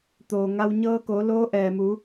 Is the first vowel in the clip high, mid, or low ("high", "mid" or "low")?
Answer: mid